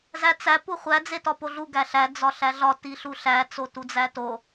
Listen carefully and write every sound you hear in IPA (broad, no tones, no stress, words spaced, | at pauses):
zæt͡sæ puχʷæ d͡zetɒpoɮu ɡæɬæ d͡zɒɬæɮɒ tiɬuɬæ t͡sotud͡zæto